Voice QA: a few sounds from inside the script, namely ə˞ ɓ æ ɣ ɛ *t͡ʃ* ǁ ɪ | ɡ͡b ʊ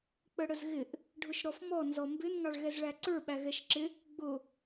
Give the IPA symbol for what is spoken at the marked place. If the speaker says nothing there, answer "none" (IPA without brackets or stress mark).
ʃ